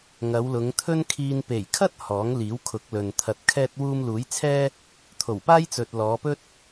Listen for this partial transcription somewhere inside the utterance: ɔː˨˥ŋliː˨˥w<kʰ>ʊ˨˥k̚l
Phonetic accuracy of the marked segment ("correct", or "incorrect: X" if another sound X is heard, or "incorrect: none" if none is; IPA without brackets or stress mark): correct